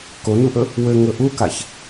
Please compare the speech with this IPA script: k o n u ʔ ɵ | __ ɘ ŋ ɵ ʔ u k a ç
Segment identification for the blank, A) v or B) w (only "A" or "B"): B